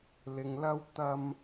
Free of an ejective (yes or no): yes